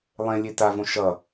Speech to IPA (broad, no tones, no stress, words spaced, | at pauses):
lˠẽlʲe tavõ ʃʌ